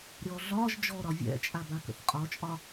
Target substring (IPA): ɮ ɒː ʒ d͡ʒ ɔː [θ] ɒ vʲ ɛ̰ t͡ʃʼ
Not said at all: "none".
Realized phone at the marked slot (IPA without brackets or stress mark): ɾ